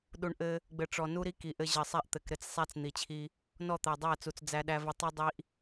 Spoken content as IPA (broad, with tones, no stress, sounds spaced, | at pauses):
ɗ u˨ ɳ ʔ ɘ˦ | ɡ͡b ɘ˨ ʈ͡ʂ ɔ˨ n u˦ ɾ i˦ k i˨ ʔ ɘ˦ ʑ ɘ˨ sˤ æ˦ ʔ t̪ ɘ˨ k ɾ ɘ˦ t͡s sˤ æ˦ t͡s n̪ i˨ t͡ɕʰ i˦ | n ɔ˦˨ t̪ æ˨ dˤ æ˦˨ t͡s u˨ t͡s d͡z æ˦ ɗ æ˦ v ɘ˦ tˤ u˦ dˤ i˦ ʔ